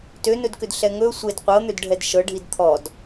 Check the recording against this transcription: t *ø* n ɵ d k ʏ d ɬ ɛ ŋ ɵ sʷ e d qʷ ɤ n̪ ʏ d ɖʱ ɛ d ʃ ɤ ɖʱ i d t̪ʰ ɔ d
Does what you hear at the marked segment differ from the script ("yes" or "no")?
no